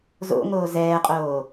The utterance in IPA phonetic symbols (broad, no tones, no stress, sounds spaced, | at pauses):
z o̰ ŋ oː z ɛː qʼ oː